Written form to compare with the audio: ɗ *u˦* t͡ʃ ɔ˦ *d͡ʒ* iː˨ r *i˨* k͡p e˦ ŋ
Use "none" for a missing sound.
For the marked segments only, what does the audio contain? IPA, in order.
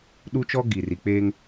u˦, ɡ, i˨

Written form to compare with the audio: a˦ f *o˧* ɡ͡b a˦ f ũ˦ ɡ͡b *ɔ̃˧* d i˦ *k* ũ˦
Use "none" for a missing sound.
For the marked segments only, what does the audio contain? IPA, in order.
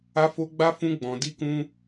o˦, ɔ̃˧, k

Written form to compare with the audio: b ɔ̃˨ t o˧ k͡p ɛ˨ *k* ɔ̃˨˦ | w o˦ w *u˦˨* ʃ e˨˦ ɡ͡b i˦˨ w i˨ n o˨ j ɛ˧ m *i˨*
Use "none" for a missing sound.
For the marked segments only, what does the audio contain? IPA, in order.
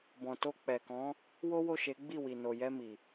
k, o˦˨, i˨

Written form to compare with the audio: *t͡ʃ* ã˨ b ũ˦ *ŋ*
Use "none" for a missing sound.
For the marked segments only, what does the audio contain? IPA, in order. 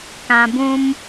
k, m

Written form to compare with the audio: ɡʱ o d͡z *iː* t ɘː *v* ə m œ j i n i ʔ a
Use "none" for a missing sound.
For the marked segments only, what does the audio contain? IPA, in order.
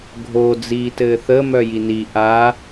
iː, θ

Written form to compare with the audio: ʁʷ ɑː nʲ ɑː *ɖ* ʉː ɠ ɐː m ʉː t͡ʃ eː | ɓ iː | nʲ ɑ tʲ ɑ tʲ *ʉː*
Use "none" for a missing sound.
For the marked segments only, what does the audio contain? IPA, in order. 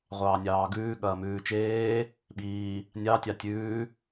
ɡ, ʉː

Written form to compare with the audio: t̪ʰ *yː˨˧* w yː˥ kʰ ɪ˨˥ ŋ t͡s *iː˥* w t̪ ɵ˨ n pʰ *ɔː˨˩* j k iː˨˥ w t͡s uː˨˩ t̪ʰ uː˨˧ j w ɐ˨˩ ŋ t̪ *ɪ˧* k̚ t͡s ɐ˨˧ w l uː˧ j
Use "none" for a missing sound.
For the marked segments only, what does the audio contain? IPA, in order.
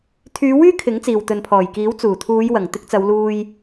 yː˨˧, iː˨, ɔː˨˩, ɪ˧

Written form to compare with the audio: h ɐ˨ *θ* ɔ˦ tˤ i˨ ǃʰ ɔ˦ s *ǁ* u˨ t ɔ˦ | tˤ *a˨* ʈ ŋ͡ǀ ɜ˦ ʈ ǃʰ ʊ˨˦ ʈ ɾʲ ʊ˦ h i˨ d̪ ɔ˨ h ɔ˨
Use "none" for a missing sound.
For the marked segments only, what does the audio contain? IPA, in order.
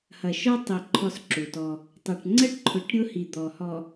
ʃ, ǁ, ɐ˨

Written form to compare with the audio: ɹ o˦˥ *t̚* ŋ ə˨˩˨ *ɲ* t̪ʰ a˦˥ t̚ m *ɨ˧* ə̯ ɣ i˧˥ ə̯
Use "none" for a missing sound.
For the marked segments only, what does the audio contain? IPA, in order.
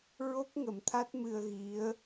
k̚, m, ɨ˧

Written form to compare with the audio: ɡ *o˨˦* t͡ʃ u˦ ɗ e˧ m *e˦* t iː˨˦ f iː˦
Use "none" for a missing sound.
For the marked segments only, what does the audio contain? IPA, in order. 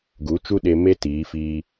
u˨˦, e˦

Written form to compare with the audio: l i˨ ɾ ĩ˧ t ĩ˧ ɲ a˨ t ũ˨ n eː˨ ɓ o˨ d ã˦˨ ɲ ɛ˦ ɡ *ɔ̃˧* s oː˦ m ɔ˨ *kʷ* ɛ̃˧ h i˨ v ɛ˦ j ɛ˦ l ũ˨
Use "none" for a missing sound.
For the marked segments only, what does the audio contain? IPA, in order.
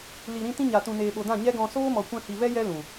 ɔ̃˧, kʷ

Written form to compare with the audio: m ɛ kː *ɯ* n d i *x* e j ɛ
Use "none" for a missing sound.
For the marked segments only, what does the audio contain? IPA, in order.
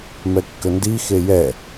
ə, x

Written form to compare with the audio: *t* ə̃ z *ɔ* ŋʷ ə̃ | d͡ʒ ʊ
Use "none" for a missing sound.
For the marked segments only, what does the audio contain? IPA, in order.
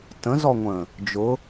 t, ɔ

